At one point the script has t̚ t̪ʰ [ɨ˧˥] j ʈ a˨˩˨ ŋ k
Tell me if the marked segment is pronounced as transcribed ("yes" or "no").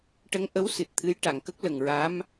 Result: yes